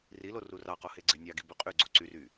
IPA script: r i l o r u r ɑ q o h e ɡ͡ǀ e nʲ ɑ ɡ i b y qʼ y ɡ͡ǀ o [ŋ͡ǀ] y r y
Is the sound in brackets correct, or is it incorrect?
incorrect